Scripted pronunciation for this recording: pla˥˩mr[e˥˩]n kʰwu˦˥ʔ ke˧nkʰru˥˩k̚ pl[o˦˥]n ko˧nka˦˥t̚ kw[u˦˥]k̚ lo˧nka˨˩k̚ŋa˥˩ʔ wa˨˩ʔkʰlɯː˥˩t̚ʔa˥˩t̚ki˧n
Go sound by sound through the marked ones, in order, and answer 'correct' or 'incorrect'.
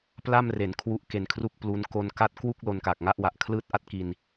incorrect: e˩˦, incorrect: u˦˥, incorrect: u˥˩

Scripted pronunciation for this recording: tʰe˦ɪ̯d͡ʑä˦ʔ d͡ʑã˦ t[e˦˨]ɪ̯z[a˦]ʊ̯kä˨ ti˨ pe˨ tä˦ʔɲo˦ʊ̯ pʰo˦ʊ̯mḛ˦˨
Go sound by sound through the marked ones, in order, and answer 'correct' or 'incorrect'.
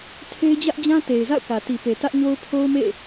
incorrect: e˨, incorrect: a̰˦˨

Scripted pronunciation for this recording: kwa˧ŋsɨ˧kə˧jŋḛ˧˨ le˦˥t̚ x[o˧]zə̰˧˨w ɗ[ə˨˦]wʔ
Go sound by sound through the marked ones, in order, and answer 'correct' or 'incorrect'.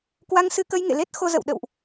correct, incorrect: ə̰˧˨

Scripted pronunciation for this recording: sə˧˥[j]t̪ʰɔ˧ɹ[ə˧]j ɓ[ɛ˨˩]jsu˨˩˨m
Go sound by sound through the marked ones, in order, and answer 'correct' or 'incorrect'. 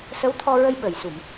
incorrect: w, correct, incorrect: ə˨˩

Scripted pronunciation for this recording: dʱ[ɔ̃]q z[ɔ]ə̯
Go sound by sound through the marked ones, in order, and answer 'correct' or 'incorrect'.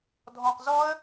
correct, correct

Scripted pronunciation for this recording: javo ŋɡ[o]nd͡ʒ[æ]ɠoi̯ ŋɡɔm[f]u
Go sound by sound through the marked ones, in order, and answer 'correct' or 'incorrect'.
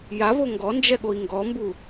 incorrect: ɔ, incorrect: ɛ, incorrect: b

